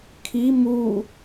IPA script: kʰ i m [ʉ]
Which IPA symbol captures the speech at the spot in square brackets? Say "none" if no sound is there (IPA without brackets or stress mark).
u